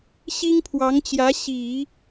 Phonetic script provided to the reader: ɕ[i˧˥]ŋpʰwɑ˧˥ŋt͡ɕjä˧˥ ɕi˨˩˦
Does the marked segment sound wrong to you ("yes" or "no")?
yes